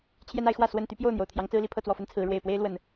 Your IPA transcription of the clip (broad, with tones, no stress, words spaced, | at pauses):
t͡ɕʰjɛ˦na˨˦ɪ̯xwä˥˨ swə˥˨n t̪y˦pjo˥˨ʊ̯n̪jo˩ʊ̯ t̪ʰjɑ˨˦ŋt͡sɹ̩˦li˨˦ pʰɤ˥˨t͡swɔ˥˨fə˦nt͡sʰɹ̩˨˦ ɻwe˨˩ɪ̯pwe˦ɪ̯ lwə˨˩n